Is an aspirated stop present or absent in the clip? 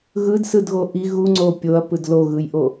absent